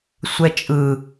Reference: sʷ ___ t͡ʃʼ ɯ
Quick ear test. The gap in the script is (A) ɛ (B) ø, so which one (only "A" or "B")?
A